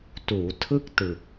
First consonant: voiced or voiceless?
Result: voiceless